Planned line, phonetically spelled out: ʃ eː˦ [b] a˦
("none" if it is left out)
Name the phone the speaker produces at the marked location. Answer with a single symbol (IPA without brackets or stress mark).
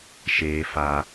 f